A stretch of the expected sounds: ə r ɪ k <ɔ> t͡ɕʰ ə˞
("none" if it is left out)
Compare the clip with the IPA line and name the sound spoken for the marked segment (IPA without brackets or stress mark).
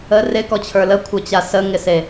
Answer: ɔ